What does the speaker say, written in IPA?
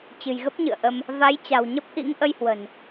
t͡ɕɨ̤˨˩jɣə˦˥p̚ɲɨ̰˧˨ə̯ʔə˧m | va˨˦jt͡ɕa̤˨˩wɲə˦˥p̚ʔḭ˧˥ŋ ʔə˧jhwə̤˨˩n

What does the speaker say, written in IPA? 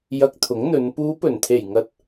jɐ˧k̚t̪ʰʊ˨˥ŋn̪ɵ˨˧n puː˨˧pɵ˨˩nt̪ʰe˨˩jŋɐ˨t̚

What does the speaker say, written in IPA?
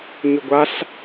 ɲʏɡʷaɬ

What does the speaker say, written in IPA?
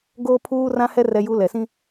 ɡoː˦pʰuː˦rã˦hɛ˦ rɛ˦ju˦ lɛ˨sĩ˦

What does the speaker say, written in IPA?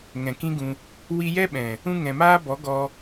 ŋɛ̃˨kĩ˦ɡũ˧ | wi˧jɛ˦ ɓɛ̃˨ | ũ˧ ŋɛ̃˨maː˦bɔ˨˦ɡɔ˧

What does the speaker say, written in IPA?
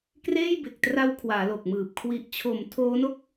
kreː˥˩jbe˨˩k̚tra˦˥w kʰwaː˩˦lo˨˩k̚mɯː˨˩p̚ kʰwi˨˩ʔt͡ɕʰo˩˦m tʰoː˦˥no˥˩k̚

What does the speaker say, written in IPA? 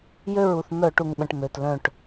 jø˥˨ɹu˧˩θ mœ˧˩˧ʈu˩ŋɓə̃˩ʈ mø˩tlœ̃˧˩ʈ

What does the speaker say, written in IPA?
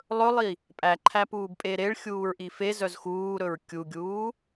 lˠɵlˠi | pʼæǃʰæpuːbpʼe ɾeɭxʲuːɹʔi fezœz xuːɾɵɹ kʲuɡʲuː

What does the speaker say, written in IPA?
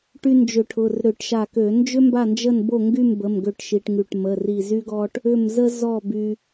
ʈy˧ nd͡ʒʏ˧˩˧ʈʰʊ˩˧˩rɾʏ˧˩˧ʈ ʃa˧˩kø˧˩˧ nd͡ʒʏ˥mba˥˨nd͡ʒə˥˨nbo˥˨ ŋɡy˥˨mbə˩˧˩m ɡø˥˨ʈʃi˧ʈŋy˧˩ʈ mə˩˧˩ri˧˩zy˥ɡɔ˥ʈ | ʏ˥˨m zə˥ zɔ˥˨by˧

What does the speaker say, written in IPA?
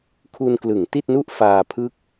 kʰu˧nklɯ˩˦ŋti˥˩t̚nu˥˩ʔ faː˧pʰɯ˥˩k̚

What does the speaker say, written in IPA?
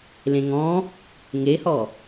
lẽŋɔ̃ | ŋehɔ

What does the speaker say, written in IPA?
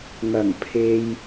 ŋɐ˨˩ŋpʰe˨j

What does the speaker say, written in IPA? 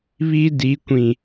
βi˦ di˨˦kʷĩ˨

